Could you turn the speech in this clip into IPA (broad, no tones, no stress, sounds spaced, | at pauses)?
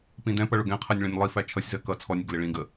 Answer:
p ĩ d ɛ̃ p ʌ ɭ ʊ ɡ ɛ̃ qʰ ɜ nʲ ɭ ĩ nʲ lˠ i f æ t͡ʃʰ ʌ sʲ z ɜ k ʌ t͡sʰ ɔ nʲ ɪ ɡ l ɪ ɭ ĩ ɡ ə